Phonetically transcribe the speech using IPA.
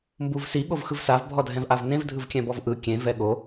m b u v s i ɠ o v x ɯ v s a v bʱ ɔ dʱ ɛ̃ v ʔ a v n ẽ v dʱ ɯ v kʲ ɛ̃ b ɔ v ʔ ɯ kʲ ẽ v ɛ ɠ o

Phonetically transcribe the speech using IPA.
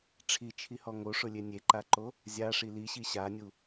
ʈ͡ʂʰ i t͡ʃʰ i h ɔ ŋ o ʂ ʊ lʲ e nʲ e ǃ a ǃ o | zʲ a ʂ i l i ɕ i ɕ a nʲ u

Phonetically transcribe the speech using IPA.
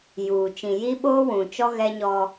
j uː˨ t͡ʃ ĩ˨ j i˦ ɓ oː˦ w ũ˨ t͡ʃ ɔ˦ ɣ ɛ˦ ɲ ɔ˦

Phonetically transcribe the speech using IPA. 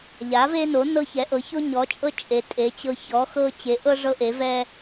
ʎ a˩˥ v e˦ n o˩˥ n ɤ˦ ç ɛ˩˥ ʔ ɤ˩˥ ç o˦ ɲ ɔ˩˥ t͡ʃʼ ɤ˦ t͡ʃʼ e˩˥ tʼ e˩˥ t͡ɕ ɤ˦ ç ɔ˩˥ x ɤ˦ t͡ɕ e˩˥ ʔ ɤ˦ ʐ ɤ˦ ʔ e˩˥ v ɛ˦

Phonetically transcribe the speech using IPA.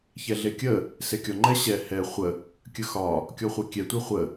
ç ɛ ɮ e kʲ ə | s e kʲ ɔ ŋ͡ǃ ɛ ɕ ɛ h ɛ χʷ ə | kʲ ə x ɒ | kʲ ɔ χʷ e kʲ ɛ tʷ ɛ χʷ ə

